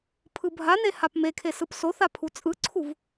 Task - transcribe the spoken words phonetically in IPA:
pʰ ɯ bʱ a n e h a p m e kʰ e s ɯ p s o θ a pʰ u t͡sʼ ɯ ǀʰ u v

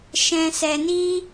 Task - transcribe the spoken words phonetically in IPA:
ʃ ɛ̃˧ s ɛ˧ n i˦

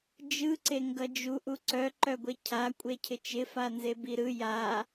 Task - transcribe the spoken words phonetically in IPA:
d͡ʒ ɯ ǀ e ŋ ɡ ʌ d͡ʒ u ʔ u ǀ œ ǃ œ ɡʷ e cʰ a kʷʼ e cʰ ɪ t͡ʃ ɪ f a n z e b i ɾ ɯ j a

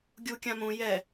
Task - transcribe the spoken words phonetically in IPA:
ɡʲ u kʲ ã m ũ j ɛ

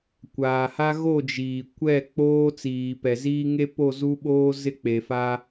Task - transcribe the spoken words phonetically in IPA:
kʷ aː˨ h a˦ ɣ o˦˨ d͡ʒ iː˨ kʷ ɛ˦˨ k͡p oː˦ t͡s iː˨ p ɛ˨ z iː˦ ŋ e˦ p o˦˨ z u˦ ɓ oː˦ z ɪ˦ k͡p e˨ f a˦

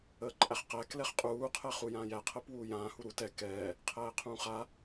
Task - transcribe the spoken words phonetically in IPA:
əː ǃʼ æ χ q æ k l ɛ χ qʼ uː qʰ ɛ χ u j ãː j æ qʰ əː p w uː j ãː h u ɾ u t ɛ k ɛː | qʰ æː qʰ ũː χ a

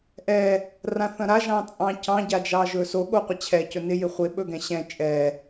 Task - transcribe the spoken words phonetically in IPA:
ʔ ɛ | r ã θ ɐ̃ ɾ a ʒ ɑ̃ t͡sʼ ɑ̃ c ɑ̃ ɟ a d͡ʒ ɑ ʒ ɵ s o ɠ o qʷ ɪ t͡ɕʰ ɛ c ɵ n ɪ j ɪ χʷ ɪ ɓ ɵ ɡ ɛ̃ ɕ ɛ̃ t͡ʃʼ ɛ

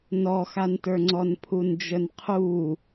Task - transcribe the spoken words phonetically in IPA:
n ɔ x a n t ə˞ ŋ͡ǀ ɔ n pʰ u n d͡ʒ ə n qʰ u

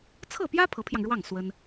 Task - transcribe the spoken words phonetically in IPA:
t͡sʰ ɤ˥˩ p j ä˥ pʰ ɤ˧˥ pʰ j ɑ˧ ŋ ɻ w ɑ˥˩ ŋ s w ə˥ n

